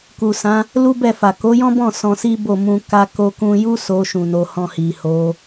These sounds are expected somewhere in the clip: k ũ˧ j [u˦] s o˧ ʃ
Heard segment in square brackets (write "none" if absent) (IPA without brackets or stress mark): u˦